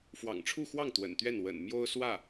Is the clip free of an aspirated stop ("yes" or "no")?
no